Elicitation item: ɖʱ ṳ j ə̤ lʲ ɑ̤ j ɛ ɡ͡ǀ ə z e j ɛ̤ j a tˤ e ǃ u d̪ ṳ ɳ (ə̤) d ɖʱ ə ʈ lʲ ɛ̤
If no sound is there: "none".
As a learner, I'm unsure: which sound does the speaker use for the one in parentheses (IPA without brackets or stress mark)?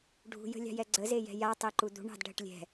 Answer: ɑ̤